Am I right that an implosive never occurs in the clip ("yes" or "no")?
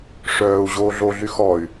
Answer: yes